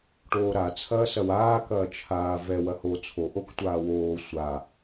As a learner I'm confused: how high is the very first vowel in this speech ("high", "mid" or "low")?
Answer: mid